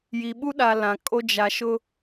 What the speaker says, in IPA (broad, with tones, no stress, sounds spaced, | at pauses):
j i˨ ɓ u˦ ɗ a˨ l ã˨ kʼ o˦ d͡ʒ a˨ ʃ ʊ˦